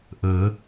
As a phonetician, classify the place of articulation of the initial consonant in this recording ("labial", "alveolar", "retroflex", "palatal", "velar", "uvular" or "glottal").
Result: glottal